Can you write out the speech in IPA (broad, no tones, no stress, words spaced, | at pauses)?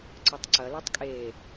ǀɐtˤǀɐ lʉtˤkʼeː